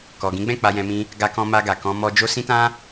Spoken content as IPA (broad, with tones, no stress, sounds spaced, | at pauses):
k ɔ˨ ɡ ĩ˨˦ ɡ͡b ɛ̃˦˨ k͡p a˧ j ɛ̃˧ m ĩ˧ | ɡ a˧ k ɔ̃˧ m a˧ ɡ a˨ k ɔ̃˧ m ɔ˧ d͡ʒ o˦ s ĩ˦ t ã˦